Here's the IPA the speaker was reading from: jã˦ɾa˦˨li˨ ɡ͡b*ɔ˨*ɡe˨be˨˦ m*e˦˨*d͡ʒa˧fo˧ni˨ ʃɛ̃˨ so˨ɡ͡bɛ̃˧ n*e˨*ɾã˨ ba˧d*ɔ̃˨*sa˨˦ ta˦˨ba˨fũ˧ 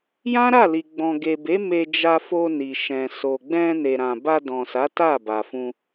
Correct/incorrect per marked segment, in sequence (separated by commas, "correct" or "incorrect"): incorrect, incorrect, correct, correct